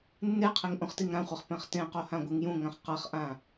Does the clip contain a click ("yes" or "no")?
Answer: no